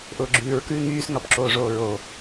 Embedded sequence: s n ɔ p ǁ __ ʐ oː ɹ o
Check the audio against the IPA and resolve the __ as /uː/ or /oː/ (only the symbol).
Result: oː